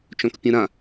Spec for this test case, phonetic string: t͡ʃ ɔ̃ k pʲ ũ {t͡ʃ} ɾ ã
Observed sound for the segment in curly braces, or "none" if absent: none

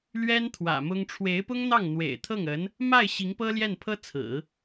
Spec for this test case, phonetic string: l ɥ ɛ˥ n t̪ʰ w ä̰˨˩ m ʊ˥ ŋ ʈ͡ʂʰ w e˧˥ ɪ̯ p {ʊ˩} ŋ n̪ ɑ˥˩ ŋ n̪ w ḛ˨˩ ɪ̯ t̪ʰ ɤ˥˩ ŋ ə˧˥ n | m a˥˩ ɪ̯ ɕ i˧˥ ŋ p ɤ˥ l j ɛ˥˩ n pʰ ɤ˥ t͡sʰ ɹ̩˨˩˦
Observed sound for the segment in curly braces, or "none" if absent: ʊ˥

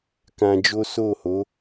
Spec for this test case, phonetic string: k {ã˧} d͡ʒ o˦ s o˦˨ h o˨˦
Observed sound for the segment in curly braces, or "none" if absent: ã˧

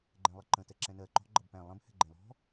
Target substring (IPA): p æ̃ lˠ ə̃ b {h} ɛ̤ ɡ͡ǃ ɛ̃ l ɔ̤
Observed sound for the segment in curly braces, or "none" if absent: h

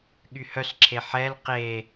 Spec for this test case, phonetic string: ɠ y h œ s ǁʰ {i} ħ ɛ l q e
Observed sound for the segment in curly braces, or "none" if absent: e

